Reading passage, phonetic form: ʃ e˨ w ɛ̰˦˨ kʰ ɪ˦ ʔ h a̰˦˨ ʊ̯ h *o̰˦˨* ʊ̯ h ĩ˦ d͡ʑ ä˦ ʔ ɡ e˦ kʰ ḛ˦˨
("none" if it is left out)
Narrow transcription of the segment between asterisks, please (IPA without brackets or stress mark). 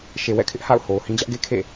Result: o˨